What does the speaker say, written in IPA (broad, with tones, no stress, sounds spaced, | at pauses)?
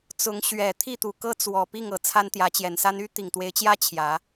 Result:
t͡s ʊ˨˦ ŋ ɕ ɥ ɛ˨˩ t̪ʰ i˥˨ t̪ u˨˩ k ɤ˦ t͡s w ɔ˨˩ p i˥˨ ŋ ɤ˨˩ t͡sʰ a˦ n t̪ j ä˨˦ t͡ɕ j ɛ˨˩ n s a˦ n y˦ t̪ i˨˩ ŋ t̪ w e˨˦ ɪ̯ t͡ɕ j ä˦ t͡ɕʰ j ä˨˦